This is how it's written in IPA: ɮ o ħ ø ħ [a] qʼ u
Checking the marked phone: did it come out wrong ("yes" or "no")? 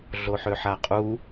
no